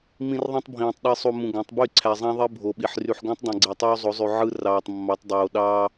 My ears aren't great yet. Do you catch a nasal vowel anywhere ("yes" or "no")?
yes